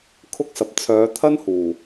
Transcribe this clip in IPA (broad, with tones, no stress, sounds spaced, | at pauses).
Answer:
kʰ ʊ˥ k̚ s ɐ˨ p̚ t͡sʰ œː˨˧ t̪ʰ ɐ˥ n h uː˨˩